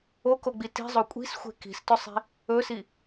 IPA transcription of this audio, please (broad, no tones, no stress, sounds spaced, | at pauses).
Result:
o k o ɡ͡b i t i̤ zˤ o kʷʼ i̤ s xʷ e̤ k i̤ s t ɵ sˤ i̤ | ɵ s i